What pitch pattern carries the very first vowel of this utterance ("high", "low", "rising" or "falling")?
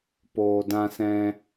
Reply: low